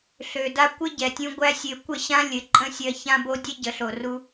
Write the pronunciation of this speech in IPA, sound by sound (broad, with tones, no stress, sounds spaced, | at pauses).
ɬ ø˨ d a˦ kʷ ɘ˦ ɟ ɛ˨ tʲ ũ˧ ɡʷ æ˦ sʲ ø˧ kʷ ə˦˨ ɕ ã˦ lʲ ɘ˧ ǃʼ ə̃˦ sʲ ɜ˧ ç ã˦ b o˦ dʲ ɛ˦ ɟ ə˨ ɬ o˨ r u˦